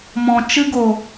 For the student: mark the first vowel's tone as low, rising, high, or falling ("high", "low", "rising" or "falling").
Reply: low